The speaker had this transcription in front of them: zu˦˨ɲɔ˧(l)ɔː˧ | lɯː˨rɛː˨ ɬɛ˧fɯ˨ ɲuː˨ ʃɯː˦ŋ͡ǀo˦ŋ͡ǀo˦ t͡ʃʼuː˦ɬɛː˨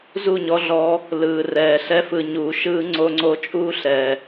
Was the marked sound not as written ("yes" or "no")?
yes